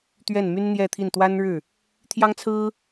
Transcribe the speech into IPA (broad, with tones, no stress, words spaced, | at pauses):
t̪ɥɛ˥˩nmy˥nn̪jɛ˥˧t̪ʰi˥˩n t̪wa˥nɻɻ̩˥˩ | t̪ʰjɑ˥ŋt͡sʰɹ̩˥